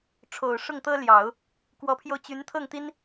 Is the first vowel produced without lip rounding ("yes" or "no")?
no